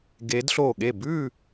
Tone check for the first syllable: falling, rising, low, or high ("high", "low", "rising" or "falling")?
rising